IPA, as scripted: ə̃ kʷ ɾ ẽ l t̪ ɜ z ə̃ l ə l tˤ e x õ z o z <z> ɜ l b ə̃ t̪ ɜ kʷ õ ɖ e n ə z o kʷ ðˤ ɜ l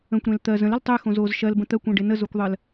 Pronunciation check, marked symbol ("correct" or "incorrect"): incorrect